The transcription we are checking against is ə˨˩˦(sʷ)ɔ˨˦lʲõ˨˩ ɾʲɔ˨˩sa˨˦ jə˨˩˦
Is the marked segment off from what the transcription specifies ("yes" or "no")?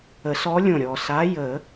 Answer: yes